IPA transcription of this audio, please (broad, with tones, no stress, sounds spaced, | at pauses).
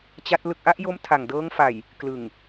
t͡ɕ a˦˥ t̚ l ɯ˨˩ k̚ ʔ a˥˩ ʔ j o˦˥ m tʰ a˨˩ ŋ d ɤː˦˥ ŋ f a˨˩ j | k l ɯ˨˩ ŋ